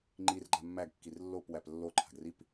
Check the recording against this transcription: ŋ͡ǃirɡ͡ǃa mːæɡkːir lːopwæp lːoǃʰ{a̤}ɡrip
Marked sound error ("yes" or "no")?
no